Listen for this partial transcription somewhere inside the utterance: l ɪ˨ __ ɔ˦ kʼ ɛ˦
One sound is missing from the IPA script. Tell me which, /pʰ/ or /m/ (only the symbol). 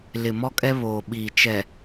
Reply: m